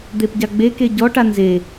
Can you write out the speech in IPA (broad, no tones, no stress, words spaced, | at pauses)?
d̪epɟaɡ͡beke ɟɔʈa nze